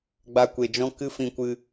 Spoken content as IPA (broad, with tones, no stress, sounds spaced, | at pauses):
ɡ͡b a˧ kʷ e˨ d͡ʒ ɔ̃˦ k ɨ˦ f ĩ˧ kʷ ɨ˧